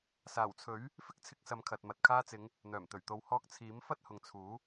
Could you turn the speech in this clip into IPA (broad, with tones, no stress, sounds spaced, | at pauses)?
s aː˨˩ w t͡sʰ ɵ˨˥ ɥ | f ɪ˥ k̚ t͡sʰ ɪ˧ k̚ s ɐ˨˧ m kʰ ɐ˨ t̚ m ɐ˨ t̚ kʰ aː˧ t͡s ɪ˨˧ ŋ | n̪ œː˨˩ m t̪ ɵ˨˩ ɥ t̪ o˨˧ w h ɔː˧ k̚ t͡sʰ iː˨˥ m f ɐ˥ t̚ h ʊ˨ ŋ t͡sʰ uː˨˥